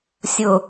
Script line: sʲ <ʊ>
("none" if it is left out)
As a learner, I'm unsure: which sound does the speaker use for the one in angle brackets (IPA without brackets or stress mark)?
ʊ